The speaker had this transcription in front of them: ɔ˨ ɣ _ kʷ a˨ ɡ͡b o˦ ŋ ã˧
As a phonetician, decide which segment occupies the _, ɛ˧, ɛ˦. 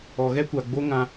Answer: ɛ˦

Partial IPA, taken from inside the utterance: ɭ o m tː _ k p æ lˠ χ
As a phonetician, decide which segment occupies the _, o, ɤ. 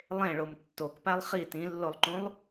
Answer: o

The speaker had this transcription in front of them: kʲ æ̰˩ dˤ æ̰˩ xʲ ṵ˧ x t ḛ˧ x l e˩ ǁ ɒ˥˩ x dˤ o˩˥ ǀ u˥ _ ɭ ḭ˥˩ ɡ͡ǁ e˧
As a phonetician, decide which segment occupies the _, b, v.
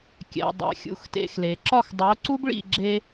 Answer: b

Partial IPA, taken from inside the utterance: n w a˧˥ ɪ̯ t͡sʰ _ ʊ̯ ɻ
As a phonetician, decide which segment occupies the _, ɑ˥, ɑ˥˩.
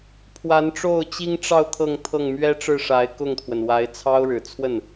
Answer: ɑ˥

